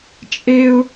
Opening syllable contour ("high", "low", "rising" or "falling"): high